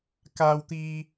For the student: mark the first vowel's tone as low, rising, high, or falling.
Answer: low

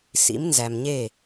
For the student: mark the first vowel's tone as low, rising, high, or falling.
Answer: rising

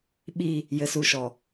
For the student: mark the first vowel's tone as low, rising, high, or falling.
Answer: falling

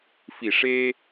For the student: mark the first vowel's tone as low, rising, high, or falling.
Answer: low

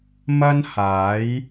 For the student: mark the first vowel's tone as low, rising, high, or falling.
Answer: high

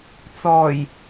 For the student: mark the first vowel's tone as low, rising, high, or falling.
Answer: low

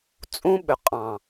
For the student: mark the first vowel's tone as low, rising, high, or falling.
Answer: high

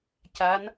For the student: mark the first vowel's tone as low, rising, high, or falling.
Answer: rising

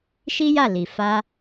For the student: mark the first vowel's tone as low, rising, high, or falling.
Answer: high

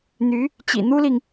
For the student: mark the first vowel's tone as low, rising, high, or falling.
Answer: rising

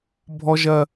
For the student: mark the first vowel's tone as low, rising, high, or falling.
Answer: high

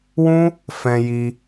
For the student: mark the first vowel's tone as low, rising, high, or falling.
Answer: high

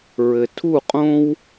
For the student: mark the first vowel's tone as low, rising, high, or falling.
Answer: low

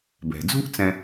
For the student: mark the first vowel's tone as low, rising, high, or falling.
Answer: low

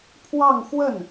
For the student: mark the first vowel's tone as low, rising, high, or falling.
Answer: falling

